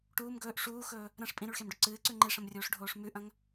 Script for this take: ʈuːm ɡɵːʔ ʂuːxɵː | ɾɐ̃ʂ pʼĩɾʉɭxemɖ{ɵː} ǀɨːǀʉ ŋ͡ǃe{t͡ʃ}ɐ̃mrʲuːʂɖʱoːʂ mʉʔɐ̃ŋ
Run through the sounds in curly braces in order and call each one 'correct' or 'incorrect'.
incorrect: ɵ, incorrect: ʂ

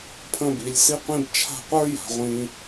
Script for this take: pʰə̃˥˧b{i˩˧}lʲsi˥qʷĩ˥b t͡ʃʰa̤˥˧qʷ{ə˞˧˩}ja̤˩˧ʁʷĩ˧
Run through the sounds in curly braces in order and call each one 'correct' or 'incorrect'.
correct, incorrect: ə˞˥

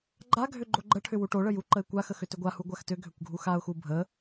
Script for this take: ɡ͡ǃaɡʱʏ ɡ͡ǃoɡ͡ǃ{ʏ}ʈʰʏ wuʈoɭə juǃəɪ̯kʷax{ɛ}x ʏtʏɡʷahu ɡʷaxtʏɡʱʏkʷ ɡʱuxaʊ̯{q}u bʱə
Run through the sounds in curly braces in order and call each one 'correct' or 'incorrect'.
incorrect: ə, incorrect: ə, incorrect: x

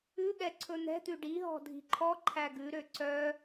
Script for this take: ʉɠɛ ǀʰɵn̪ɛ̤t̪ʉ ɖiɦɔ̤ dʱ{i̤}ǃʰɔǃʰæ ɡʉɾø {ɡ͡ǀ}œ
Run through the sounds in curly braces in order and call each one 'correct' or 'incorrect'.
correct, incorrect: ǀ

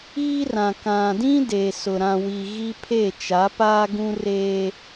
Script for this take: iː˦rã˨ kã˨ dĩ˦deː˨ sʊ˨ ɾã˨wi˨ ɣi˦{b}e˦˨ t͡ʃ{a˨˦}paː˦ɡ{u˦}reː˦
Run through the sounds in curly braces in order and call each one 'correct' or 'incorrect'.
incorrect: pʰ, correct, incorrect: ũ˦

